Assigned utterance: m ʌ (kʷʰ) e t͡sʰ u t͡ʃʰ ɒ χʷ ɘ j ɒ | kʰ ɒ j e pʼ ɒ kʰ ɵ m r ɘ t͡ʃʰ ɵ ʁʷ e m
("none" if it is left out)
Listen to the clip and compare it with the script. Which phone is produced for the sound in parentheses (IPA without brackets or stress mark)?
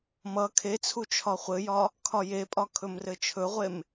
kʰ